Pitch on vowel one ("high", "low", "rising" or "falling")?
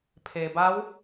low